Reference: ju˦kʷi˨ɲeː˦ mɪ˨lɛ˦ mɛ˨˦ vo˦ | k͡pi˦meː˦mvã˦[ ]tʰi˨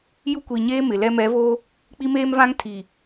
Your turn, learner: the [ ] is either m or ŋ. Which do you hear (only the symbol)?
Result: ŋ